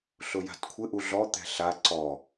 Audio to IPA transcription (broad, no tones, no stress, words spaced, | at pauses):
ɬʊja̤tkʷʰɪ ʔuɮɔ t̪ɛ̤ɬa ǀɔ